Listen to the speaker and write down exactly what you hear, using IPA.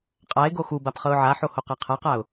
qʼ a ɪ̯ ɡ o x u b a p χ ɤ ʊ̯ ʕ a ħ o h o q a qʰ a q a ʊ̯

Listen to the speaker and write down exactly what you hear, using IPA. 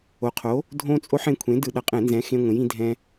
o˨˩ qʰ o˨˥ | dʱ õ˦ t͡sʼ o˦ ħ ẽ˨˥ kʷʰ ẽ˨˥ d ɯ˧˩˧ ɗ ʌ˨˩ qʼ ɛ̃˧˩˧ n z ɛ̃˨˥ x ẽ˦ ŋʷ ẽ˨˥ j ĩ˨˥ dʱ ɛ̃˦

